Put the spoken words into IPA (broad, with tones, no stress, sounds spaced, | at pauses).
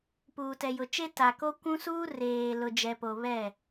p uː˨ t ɛ˨ j ʊ˨ t͡ʃ e˦ t a˨ k o˦ kʷ ũ˦ s uː˦ r eː˨ l ʊ˨ d͡ʒ ɛ˨ p o˨ β ɛ˦˨